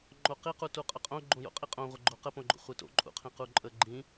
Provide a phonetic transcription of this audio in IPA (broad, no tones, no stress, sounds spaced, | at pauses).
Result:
ŋ͡ǃ o q i q u t u qʼ ə qʼ õ ɡ͡ǃ õ j o̰ qʼ i qʼ õ ʁʷ ə ɡ͡ǃ o q ə p õ ɡ͡ǃ o̰ χʷ e t o̰ ǃʼ ṵ qʰ ĩ q u ǃʼ ə ɡ͡ǃ ĩ